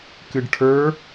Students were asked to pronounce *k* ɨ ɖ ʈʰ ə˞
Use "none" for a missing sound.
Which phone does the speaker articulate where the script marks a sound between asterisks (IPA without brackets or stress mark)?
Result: k